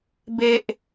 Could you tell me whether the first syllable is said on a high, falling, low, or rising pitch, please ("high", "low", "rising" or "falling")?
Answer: low